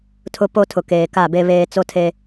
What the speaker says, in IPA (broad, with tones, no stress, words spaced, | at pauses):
tʰʊ˦ po˦tʰʊ˨ keː˨ka˦˨be˦ βeː˦ t͡so˦tʰe˦